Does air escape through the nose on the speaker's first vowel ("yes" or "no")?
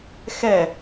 no